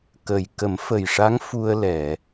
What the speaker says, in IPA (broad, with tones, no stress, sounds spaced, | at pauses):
k ə˨˩ j k ə˨˩˦ m f ə˨˩ j ʂ a˧˥ ŋ f u˧ ə̯ l ɛ˨˩˨